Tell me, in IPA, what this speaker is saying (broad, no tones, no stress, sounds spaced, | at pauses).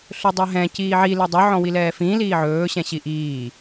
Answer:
ɬ ɵ dˤ ɛ ɦ ɛ̃ c iː ʕ i l ɛ dˤ ɵ ʕ ɔ̃ w i l ɛː f ĩː l iː ʕ ɵː ɕ ɛ̃ ɕ i ʔ iː